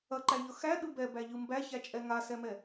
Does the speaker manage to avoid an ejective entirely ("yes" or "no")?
no